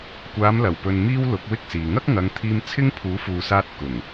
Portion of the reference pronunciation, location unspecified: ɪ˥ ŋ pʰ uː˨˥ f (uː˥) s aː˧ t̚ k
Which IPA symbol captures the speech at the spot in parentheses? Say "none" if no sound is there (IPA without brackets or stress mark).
uː˨